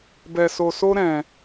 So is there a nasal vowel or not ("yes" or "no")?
yes